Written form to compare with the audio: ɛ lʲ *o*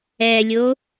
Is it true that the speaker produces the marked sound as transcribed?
yes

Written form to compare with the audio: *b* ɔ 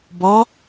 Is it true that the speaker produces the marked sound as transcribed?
yes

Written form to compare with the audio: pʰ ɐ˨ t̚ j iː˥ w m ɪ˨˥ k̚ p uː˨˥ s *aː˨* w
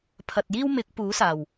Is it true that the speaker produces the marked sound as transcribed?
no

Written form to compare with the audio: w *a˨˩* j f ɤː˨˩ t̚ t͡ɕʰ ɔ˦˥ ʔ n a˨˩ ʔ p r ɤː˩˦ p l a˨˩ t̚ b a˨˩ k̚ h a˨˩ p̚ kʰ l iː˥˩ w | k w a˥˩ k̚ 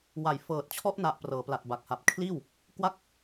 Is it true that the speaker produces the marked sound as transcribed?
yes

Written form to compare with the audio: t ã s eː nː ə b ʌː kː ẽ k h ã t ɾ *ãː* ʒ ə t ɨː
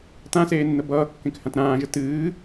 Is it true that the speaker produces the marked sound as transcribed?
yes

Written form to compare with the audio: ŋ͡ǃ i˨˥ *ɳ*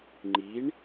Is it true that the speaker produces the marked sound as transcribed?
yes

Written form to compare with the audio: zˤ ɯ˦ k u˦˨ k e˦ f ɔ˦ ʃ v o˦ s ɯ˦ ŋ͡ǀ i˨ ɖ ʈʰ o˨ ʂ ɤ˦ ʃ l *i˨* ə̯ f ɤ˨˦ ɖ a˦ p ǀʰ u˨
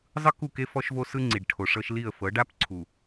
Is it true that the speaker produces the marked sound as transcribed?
no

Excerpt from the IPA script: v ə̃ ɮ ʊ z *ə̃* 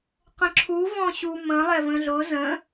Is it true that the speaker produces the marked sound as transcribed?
yes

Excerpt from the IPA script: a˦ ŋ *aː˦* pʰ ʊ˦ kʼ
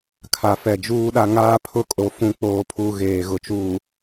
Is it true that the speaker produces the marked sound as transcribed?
yes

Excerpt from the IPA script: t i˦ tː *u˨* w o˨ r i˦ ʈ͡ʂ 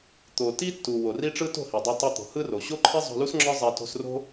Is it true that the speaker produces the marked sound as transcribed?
yes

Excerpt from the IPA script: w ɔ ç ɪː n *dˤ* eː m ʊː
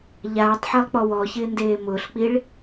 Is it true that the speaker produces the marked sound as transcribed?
no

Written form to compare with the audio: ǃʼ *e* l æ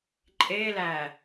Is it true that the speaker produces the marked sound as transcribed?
yes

